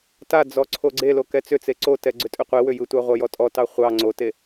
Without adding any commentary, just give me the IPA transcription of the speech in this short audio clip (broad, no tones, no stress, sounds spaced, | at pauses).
t a d͡z ɔ ǀʰ o ɡ͡ǀ e l o k ɛ t͡s ʏ t͡s e ǀ o t ɛ ɡ͡ǀ ʏ tʼ ʏ qʷ e w ʏ j ɯ tʷ ɑ ʁʷ ʌ j ɔ tʼ ɔ t ɑ χʷ ɑ ŋ͡ǀ o t e